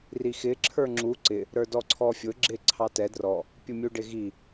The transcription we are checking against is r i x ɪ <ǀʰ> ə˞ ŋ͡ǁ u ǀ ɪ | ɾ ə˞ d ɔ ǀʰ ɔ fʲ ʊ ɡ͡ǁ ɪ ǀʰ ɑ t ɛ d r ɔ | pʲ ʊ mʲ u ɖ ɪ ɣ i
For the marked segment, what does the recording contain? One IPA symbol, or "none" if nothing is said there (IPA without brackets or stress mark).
ǁʰ